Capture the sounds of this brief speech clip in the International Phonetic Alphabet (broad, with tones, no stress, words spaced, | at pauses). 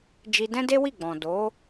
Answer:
d͡ʒi˧dɛ̃˦de˦ wi˦˨ɡ͡bɔ̃˨ do˨˦